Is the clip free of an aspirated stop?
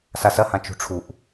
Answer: no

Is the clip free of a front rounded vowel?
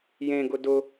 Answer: yes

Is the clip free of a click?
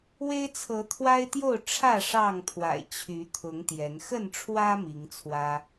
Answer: yes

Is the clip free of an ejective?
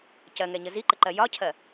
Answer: yes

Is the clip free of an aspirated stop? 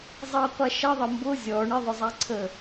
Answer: no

